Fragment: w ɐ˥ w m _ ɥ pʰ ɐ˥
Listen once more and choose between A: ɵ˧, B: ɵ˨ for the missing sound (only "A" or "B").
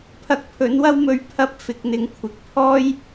A